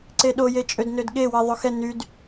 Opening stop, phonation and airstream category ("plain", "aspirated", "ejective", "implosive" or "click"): click